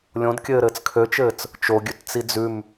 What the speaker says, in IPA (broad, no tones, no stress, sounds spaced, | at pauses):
lʲ õ d kʲ ɘː ɾ ɘː t͡s kʰ ø t͡ʃ ɘː t͡s | t͡ʃ o ɡʲ ʉ t t͡s i d͡z ʉ m